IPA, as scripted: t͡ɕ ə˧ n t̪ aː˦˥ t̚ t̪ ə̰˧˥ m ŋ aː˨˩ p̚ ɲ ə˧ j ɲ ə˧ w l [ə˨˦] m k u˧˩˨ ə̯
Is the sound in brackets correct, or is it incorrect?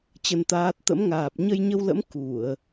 incorrect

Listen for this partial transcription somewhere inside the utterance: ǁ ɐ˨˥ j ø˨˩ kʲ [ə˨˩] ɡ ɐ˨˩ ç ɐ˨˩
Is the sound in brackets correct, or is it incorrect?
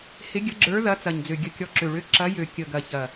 correct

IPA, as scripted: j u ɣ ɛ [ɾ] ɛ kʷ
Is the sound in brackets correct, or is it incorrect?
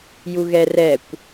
incorrect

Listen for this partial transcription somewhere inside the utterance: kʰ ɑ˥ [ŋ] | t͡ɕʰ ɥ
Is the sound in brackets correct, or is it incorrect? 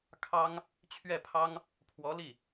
correct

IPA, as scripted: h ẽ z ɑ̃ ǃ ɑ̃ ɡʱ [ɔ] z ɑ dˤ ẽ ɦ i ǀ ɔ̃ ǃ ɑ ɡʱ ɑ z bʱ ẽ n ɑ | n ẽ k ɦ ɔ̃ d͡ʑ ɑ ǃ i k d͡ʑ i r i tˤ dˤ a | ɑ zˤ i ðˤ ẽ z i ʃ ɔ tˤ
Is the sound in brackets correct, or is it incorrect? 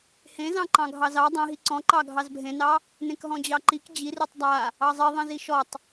incorrect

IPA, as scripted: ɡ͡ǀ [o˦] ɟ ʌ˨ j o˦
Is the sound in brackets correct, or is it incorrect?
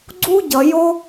incorrect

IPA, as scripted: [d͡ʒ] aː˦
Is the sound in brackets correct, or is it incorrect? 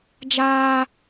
correct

